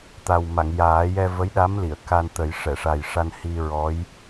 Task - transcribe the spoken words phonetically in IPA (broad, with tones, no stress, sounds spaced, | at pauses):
t̪ a˨˩ w m a˨˩˨ ŋ j aː˨˩˦ j ɛ˧ v ə˧˥ j ɗ a˧˥ m l i˨˩˨ ə̯ k a˧ n t̪ ə˨˩˦ j ʂ ɛ˨˩˨ ʂ a˨˩ j ʂ a˧ n h i˧ ɹ ɔ˧˥ j